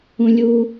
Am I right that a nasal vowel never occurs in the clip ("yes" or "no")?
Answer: no